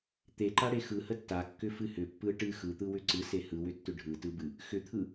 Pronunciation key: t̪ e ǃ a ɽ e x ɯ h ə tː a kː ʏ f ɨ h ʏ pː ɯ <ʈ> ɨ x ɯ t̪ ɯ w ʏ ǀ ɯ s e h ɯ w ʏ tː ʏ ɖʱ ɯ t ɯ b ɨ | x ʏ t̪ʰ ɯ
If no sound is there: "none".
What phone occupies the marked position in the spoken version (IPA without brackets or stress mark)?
ʈ